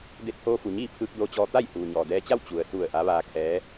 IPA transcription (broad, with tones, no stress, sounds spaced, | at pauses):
d e˧ t̚ h oː˧ f u˩ ɲ iː˥˨ pʰ ɯː˧ k̚ d oː˧ t͡ɕ ɔː˧ t̪ a˥˨ j h uː˩ ɲ ɔː˩ d ɛː˧ t͡ɕ a˥˨ w t͡ɕ u˩ ə̯ s u˧˩ ə̯ ʔ a˧˥ ʋ aː˧ kʰ ɛː˧˥